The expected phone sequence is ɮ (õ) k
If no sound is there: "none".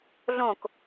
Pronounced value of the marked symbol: õ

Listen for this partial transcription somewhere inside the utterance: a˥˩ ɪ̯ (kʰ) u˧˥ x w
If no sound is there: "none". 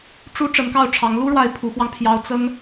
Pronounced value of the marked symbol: pʰ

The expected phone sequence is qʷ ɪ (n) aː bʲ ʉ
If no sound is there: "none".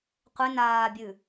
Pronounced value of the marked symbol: n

